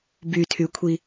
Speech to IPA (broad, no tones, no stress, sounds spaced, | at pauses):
b y tʰ y kʷʰ i